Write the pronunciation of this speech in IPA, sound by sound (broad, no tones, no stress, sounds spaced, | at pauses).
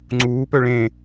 ŋ͡ǀ uː p œ ɭ ẽ